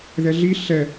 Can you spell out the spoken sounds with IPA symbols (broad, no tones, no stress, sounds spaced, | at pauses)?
ð ɛ ɮ i ɬ ɛ